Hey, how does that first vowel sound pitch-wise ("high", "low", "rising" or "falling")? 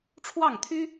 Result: falling